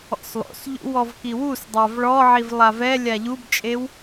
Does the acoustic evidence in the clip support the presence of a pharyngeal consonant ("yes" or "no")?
yes